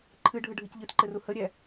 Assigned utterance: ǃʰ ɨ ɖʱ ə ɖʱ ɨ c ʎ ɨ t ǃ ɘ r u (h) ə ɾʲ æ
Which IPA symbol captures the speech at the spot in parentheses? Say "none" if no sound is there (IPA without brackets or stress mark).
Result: h